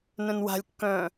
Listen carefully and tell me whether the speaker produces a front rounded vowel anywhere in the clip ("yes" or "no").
yes